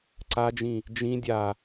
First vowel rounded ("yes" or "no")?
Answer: no